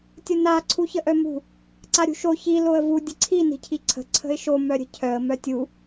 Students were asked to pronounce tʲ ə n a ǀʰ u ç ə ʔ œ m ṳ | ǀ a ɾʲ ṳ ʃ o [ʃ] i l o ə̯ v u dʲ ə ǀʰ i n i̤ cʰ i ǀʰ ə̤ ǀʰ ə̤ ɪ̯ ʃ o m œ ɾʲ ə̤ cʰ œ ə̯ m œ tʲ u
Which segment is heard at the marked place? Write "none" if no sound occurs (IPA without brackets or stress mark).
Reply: ç